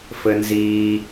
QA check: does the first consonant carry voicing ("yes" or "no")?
no